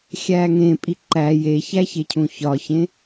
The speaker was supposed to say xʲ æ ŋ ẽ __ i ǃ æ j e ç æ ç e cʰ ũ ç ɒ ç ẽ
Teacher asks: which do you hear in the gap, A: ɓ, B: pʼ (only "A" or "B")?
B